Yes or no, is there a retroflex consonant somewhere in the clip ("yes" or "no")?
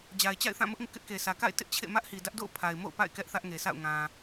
no